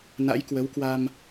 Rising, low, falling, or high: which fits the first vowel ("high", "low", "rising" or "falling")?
rising